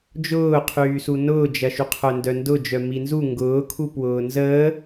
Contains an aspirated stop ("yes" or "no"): yes